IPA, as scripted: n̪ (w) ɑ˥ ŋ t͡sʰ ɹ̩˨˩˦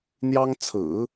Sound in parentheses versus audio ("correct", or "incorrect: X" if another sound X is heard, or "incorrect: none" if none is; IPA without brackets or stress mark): incorrect: j